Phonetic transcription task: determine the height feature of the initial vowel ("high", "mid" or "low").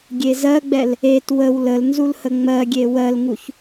mid